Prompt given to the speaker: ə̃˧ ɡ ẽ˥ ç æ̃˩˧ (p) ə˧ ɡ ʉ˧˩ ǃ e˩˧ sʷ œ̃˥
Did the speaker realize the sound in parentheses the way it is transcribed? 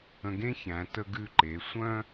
no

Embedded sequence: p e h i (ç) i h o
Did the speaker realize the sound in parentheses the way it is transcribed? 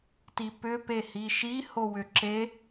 no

